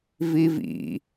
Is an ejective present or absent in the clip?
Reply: absent